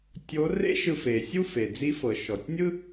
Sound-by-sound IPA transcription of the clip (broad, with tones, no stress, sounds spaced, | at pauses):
tʲ o˧˥ r ḛ˥ ʃ ɯ˧ f e˩ sʲ u˥ f e˩ d͡z i˧˥ f ɤ˩ ʃ ɔ˩ tʲ nʲ ɯ˥